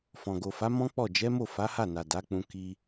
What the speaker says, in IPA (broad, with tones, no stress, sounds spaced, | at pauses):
f ɔ̃˨ ɡ o˨ f a˨˦ m ɔ̃˦ k͡p ɔ˦˨ d͡ʒ ɛ˨˦ m o˦˨ f a˨˦ h a˦˨ n a˨ d a˨˦ k͡p ũ˧ k i˧